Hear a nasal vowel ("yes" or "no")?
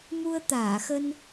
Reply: no